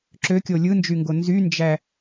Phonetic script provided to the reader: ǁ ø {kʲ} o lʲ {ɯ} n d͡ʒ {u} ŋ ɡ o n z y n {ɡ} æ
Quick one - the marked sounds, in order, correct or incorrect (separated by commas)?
correct, correct, incorrect, incorrect